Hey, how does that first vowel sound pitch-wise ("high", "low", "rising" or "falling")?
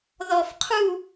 low